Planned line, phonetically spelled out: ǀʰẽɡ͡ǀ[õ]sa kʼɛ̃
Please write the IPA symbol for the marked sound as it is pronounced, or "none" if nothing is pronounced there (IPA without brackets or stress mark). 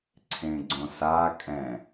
õ